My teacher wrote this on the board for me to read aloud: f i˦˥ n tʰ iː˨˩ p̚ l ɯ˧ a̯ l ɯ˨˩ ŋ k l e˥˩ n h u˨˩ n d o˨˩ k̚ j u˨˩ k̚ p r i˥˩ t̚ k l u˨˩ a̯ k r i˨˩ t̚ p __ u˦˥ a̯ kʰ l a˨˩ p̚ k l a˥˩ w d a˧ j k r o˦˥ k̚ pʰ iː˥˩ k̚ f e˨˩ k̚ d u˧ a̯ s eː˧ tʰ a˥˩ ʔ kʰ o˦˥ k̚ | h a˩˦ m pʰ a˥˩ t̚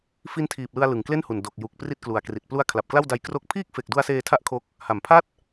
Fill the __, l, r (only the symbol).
l